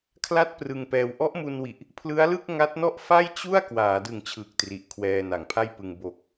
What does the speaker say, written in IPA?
kʰ l a˥˩ t̚ p r ɯ˧ ŋ p ɛː˧ w ʔ ɔ˦˥ ʔ m u˧ n w i˨˩ ʔ | pʰ l ɯ˦˥ a̯ l ɯ˥˩ k̚ ŋ a˦˥ t̚ n ɔ˥˩ ʔ f a˥˩ j t͡ɕ u˥˩ a̯ k w aː˩˦ d ɯ˨˩ ŋ t͡ɕʰ ɯː˨˩ k̚ t r i˨˩ ʔ kʰ w ɛː˧ n a˨˩ ŋ pʰ a˥˩ j p ɯ˧ ŋ b o˨˩ k̚

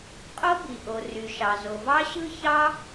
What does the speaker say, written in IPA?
qʼ o˥ b i˩ ʔ o˩ r y˩ ʃ ɑ˩ z o˩ v ɑ˥ ɕ ɯ˥ ç ɑ˥

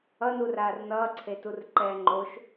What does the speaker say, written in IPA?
ʌ n u r aː r n ʌː ǀʰ e t u r ǃ ɛː ŋ͡ǃ o ʃ

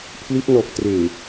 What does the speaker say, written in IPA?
pʰ l i˦˥ t̚ n ɔː˨˩ k̚ t r eː˨˩

